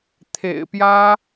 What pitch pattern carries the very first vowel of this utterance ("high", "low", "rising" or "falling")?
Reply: low